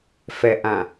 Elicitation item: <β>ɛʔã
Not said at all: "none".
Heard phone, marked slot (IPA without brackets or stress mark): f